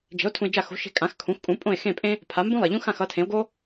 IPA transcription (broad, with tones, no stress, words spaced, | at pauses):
d͡ʒe̤˩˥o̯ tʰũ˧e̯d͡ʒa˥˩ xo̤˩˥ʃe̤˧ kʼã˩˥xkʰũ˩˥xkʼũ˩˥ pʼõ˥˩e̯ xẽ˥˩pʼẽ˥ | pʰa˩˥mbũ˥lˠe˩ʎũ˥ xã˥˩xʌ˩˥tʰẽ˩˥o̯ɡo˥